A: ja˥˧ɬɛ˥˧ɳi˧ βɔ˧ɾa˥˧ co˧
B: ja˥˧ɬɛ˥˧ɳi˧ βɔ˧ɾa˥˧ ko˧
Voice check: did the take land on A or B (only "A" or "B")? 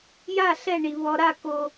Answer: B